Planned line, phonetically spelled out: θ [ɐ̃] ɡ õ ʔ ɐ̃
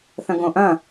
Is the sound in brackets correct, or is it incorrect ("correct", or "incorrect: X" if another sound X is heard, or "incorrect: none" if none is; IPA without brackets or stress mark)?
correct